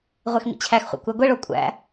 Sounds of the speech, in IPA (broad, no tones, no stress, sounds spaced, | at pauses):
ʁʷ e x m ḭ t͡ɕʰ æ x χʷ æ̰ kʷ æ ɡʷ e ɭ o kʷʼ æ̰